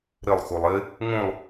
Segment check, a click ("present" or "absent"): absent